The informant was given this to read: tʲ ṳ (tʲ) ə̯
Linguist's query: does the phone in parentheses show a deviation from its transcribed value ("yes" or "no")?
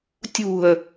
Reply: yes